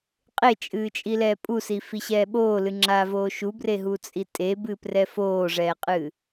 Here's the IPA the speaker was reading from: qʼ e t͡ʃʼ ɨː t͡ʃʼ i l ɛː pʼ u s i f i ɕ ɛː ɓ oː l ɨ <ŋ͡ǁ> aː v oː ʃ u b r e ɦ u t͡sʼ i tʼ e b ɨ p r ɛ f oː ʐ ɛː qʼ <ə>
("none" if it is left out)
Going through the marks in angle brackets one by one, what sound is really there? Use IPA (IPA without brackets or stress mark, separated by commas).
ŋ͡ǁ, ɨ